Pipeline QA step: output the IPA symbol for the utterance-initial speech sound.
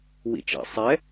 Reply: w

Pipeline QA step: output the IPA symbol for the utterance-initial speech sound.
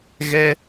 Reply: ɣ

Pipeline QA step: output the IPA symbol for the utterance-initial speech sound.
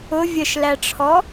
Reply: ʊ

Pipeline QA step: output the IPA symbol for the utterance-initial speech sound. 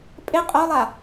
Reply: pʼ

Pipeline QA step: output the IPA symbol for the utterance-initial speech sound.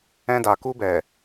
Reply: ɛ̃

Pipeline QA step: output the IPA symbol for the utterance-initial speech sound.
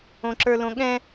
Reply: õ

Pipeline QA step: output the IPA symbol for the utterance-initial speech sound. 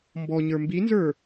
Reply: m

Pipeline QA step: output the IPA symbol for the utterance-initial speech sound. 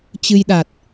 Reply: t͡ɕ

